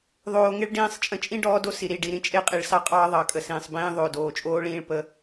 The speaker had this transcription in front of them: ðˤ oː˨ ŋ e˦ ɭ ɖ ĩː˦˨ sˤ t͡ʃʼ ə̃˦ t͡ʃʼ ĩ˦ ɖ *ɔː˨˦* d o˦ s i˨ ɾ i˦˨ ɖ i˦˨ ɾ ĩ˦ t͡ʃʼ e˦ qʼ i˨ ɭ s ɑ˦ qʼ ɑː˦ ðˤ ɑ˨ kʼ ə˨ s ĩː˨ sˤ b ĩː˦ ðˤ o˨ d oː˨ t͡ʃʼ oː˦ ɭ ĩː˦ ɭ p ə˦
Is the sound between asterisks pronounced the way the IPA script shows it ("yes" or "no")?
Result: yes